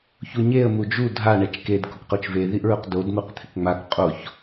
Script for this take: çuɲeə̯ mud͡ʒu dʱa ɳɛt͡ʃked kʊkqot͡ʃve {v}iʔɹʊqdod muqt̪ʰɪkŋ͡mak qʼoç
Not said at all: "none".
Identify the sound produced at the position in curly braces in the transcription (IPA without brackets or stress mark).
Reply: ð